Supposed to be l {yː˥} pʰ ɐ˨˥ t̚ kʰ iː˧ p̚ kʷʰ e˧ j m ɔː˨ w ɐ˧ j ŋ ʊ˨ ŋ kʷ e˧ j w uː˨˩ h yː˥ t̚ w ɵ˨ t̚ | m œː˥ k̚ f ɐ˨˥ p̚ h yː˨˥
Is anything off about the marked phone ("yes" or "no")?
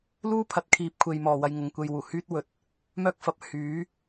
yes